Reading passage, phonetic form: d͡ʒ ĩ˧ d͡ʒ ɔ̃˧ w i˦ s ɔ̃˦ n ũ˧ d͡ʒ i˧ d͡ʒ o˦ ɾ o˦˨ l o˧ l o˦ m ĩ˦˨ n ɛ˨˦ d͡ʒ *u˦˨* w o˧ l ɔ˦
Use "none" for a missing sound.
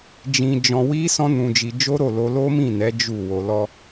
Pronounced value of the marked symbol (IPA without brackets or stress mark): u˦˨